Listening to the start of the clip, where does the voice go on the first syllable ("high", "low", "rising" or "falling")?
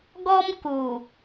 high